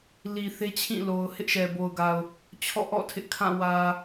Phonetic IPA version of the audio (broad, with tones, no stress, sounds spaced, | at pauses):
l i˨ θ e˦ t͡ɕʰ ĩ˦˨ l o˨ ʊ̯ h ɪ˦ ʔ ʃ ɛ˨ b o˨ ʊ̯ ɡ a˨ ʊ̯ | t͡ɕʰ ɔ̰˦˨ ʔ ɔ̰˦˨ tʰ ɪ˦ ʔ kʰ ã˦˨ w ä˨